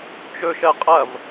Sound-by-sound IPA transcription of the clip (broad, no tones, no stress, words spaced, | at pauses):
t͡ʃɵʃɜ qʼɐv